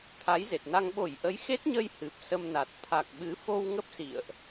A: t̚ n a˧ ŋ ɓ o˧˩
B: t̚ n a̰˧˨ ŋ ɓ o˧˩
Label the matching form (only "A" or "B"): A